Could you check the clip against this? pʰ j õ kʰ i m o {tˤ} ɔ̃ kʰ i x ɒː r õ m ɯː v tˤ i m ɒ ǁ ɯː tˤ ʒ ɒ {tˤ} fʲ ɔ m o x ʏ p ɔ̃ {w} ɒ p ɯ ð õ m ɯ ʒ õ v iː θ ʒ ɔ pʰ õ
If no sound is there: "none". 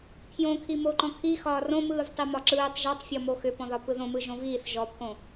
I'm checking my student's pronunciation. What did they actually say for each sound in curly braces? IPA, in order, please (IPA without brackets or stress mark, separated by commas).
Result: ǃ, tˤ, ð